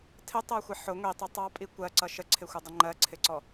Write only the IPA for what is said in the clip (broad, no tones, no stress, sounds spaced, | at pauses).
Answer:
tʰ ɪ tˤ ɜ xʷ ɪ ħ ʊ ŋʷ i tˤ i tˤ ɑ pʼ i kʷ ɜ ǀ ʌ ʃ ə ǀʰ ɪ xʷ ʌ dˤ ɪ ŋ͡ǃ ɜ ǀʰ ɪ ǀ ɔ